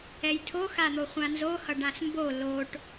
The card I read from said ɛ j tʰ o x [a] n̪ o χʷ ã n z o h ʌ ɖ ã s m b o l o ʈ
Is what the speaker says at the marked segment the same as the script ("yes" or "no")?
yes